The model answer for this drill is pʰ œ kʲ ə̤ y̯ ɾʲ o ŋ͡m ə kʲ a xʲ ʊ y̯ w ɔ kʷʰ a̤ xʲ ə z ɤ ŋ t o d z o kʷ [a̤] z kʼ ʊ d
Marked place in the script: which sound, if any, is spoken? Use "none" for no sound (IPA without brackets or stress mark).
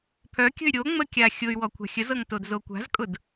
a̤